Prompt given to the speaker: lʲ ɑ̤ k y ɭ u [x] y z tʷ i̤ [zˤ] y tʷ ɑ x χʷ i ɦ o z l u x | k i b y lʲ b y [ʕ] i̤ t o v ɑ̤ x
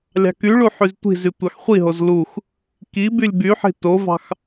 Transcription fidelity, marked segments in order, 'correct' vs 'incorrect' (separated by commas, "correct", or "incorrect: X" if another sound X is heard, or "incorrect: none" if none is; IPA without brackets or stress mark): incorrect: ħ, incorrect: z, incorrect: ħ